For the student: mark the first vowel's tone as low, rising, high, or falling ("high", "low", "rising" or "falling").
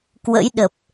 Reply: rising